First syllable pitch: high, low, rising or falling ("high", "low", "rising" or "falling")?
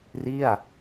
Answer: falling